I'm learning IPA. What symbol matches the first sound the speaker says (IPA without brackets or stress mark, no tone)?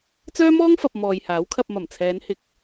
t͡s